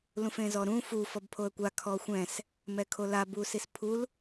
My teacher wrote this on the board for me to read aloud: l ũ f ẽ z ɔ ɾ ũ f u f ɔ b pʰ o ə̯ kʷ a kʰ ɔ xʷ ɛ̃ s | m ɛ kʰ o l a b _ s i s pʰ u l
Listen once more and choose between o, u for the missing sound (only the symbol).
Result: u